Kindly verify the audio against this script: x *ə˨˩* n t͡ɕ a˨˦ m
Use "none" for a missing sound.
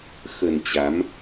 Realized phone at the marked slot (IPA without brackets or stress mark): ə˨˩